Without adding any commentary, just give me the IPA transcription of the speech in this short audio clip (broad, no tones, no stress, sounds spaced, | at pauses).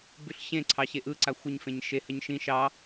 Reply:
b ʉ ɬ ɕ ẽ ǀʰ ɑ ɕ e ʔ ɯ ǀ a xʷ ə ɲ f ẽ ɲ ʃ e h ə ɲ ʃ ĩ ʃ ɑ